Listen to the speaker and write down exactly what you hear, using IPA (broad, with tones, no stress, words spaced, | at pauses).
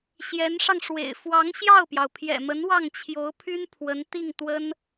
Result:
ɕjɛ˧˥nʂɑ˧ŋʂwḛ˨˩ɪ̯ fwɑ˧˥ŋɕjɑ˥˩ʊ̯pjɑ˩ʊ̯ pʰjɛ̰˨˩mə˧˥n wɑ˥˩ŋt͡ɕʰjo˧˥ʊ̯pʰy˥n pʰwə˧˥nt̪i˥˩ŋt̪wə˥n